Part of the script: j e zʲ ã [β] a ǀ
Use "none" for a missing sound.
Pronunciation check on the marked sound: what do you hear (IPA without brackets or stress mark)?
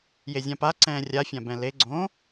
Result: p